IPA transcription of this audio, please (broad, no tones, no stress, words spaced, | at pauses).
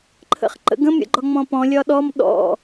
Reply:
ǃʰə̰χǃə̰ɡə̃m ɾʲə̰ɡ͡ǃɒŋ͡mɔ̃pɔ̃ lʲɒɗɔm ɗɔ̰